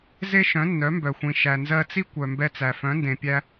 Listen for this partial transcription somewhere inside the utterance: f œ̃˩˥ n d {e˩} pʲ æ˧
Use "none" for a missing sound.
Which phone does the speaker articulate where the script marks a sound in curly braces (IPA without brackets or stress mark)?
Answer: ẽ˩